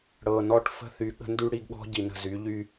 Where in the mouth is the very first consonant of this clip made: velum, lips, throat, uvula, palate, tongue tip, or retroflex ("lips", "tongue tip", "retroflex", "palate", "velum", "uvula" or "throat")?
retroflex